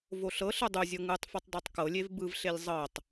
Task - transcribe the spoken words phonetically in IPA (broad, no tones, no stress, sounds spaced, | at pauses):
v o ɬ ɤ ɬ ɯ dˤ u zʲ ɤ ŋ ɯ tˤ f u tˤ dˤ a tˤ k ɤ lʲ e v b ɯ v ɬ e lʲ zˤ ɤ tˤ